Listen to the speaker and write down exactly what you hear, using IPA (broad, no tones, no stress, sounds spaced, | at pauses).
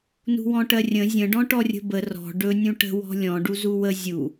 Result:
n ṳ w ɔ̃ ʈ ɜ rʲ ə̃ zʲ ə̃ ɖ ɔ̃ ʈ ɔ rʲ ə̤ b ə r ɔ̤ ɖ ɵ nʲ ũ ʈ ə̤ w ɔ̤ lʲ ɔ̃ ɖ u z u w ə zʲ u